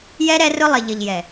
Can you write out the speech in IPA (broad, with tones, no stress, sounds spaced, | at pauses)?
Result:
j ɛ˦ ɾ ɛ˦ r ʊ˦ lˠ ɪ˨ ʎ ə˨ ʎ j ɛ˨